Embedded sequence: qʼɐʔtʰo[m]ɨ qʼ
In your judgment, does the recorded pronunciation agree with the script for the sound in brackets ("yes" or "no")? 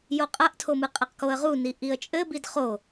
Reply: yes